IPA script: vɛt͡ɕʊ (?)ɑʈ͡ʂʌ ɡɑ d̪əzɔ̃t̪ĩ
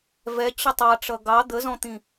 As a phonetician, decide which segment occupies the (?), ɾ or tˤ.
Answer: tˤ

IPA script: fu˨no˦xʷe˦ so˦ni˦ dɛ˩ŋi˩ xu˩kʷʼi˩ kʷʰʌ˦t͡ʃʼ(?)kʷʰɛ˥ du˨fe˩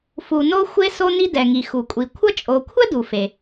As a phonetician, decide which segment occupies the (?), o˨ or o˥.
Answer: o˨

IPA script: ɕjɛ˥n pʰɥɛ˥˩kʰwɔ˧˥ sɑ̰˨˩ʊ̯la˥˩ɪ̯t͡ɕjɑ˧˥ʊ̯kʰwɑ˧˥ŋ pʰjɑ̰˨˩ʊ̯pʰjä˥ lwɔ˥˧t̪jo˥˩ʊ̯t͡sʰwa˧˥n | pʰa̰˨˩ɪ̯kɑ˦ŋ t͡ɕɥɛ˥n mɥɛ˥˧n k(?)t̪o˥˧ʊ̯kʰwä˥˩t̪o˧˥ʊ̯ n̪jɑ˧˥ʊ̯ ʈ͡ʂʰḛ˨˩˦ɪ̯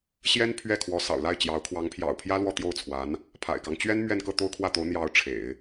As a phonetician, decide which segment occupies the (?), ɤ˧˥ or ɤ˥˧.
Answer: ɤ˥˧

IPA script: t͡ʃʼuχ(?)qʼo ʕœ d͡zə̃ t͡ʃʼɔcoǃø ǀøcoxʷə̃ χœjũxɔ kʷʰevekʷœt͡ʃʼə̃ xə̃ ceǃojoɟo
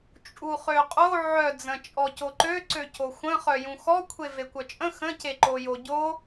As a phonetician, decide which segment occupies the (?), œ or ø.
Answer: ø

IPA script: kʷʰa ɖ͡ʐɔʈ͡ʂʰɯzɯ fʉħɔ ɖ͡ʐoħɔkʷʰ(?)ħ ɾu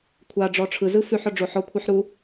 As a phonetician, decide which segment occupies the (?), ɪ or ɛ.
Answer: ɛ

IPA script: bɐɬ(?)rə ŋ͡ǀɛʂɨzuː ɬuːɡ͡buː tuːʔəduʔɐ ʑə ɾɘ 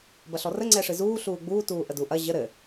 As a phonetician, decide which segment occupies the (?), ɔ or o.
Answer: ɔ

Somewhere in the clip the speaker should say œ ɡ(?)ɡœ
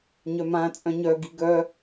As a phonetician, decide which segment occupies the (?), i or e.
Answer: i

